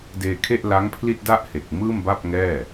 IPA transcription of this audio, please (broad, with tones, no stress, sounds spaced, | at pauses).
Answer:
d eː˧ kʰ e˥˩ ʔ l a˦˥ ŋ pʰ l i˥˩ t̚ d a˥˩ ʔ h e˨˩ k̚ m ɯː˥˩ m b a˥˩ p̚ ŋ ɛː˥˩